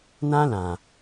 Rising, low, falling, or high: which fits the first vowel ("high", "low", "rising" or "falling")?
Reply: high